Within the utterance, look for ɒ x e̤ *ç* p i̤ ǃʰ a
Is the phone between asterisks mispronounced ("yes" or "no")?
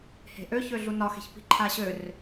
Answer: no